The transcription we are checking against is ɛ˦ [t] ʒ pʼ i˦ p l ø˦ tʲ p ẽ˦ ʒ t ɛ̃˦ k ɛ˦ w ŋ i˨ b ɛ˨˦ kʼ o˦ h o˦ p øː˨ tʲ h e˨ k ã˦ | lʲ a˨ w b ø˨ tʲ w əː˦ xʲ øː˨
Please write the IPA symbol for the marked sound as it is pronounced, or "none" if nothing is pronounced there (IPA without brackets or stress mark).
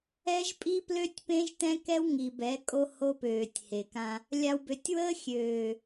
none